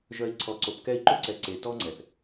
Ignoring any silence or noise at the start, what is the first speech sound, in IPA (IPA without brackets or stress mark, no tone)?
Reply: ʒ